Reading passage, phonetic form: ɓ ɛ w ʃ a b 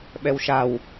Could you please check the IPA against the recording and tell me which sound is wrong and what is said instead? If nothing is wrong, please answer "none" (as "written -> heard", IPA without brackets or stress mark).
b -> w